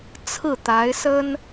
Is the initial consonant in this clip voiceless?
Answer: yes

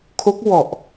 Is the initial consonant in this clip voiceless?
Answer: yes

